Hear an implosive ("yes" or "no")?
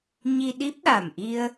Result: yes